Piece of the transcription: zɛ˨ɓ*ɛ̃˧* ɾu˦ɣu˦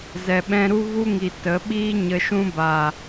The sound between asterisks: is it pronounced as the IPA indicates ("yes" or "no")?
yes